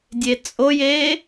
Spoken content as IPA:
dʲ e t͡sʼ o j e

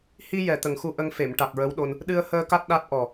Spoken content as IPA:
h i˧ j ɛ˨˩ t̪ ə˨˩ ŋ x u˧ ʔ ə˧ ŋ f e˨˩˨ m ʈ a˨˩ k̚ ɹ ə˧˥ w ɗ o˧ n | ɗ ɨ˧ ə̯ h əː˧ k a˦˥ t̚ ɗ a˦˥ t̚ ʔ ɔ˨˩

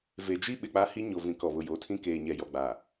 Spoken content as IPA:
v e˨ d͡ʒ i˦ ɓ ɪ˨ k͡p a˦ h i˦ ɲ o˨ v ĩ˨ k ɔ˨ β ʊ˨ j o˨˦ tʰ ĩ˦ k eː˨ ɲ ɛ˨ j ɔ˨ ɡ͡b a˨

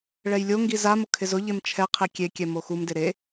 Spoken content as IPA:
ɭ ɛ j lʲ o ŋ ɡ i z a m ʊ kʰ ɪ z ʊ ʎ e m t͡ʃʰ ɛ qʰ i kʲ e kʲ ɛ m o x u m d ɪ ɾ e

